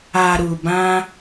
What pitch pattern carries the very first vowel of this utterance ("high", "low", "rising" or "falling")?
low